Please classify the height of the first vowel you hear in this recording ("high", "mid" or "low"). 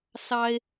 low